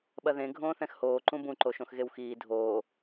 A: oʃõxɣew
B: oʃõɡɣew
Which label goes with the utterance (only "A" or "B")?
A